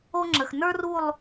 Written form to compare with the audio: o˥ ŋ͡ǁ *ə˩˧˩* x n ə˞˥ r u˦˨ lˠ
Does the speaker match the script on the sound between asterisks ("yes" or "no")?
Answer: yes